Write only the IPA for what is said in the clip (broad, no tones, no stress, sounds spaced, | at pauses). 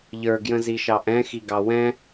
ʎ ə˞ ɡ j ə̃ z i ʃ ɑ ʔ ɛ̃ x i ɡ ɑ w ɛ̃